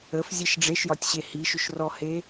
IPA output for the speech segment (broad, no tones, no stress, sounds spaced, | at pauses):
ə f zʲ e ʃ ɖ͡ʐ e ʃ j ɒ tʲ ɕ e h i ʃ ʏ ʃ r ɔ h e